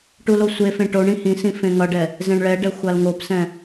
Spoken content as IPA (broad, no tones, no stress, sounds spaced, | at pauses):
ʈ u l o sʷ e f ẽ ʈ o ɳ ĩ h ĩ s ĩ f ẽ ŋ ʌ ɖ ɛ | z ẽ ɳ ɭ ɛ ɖ ɛ xʷ a l ŋ o p s ɛ̃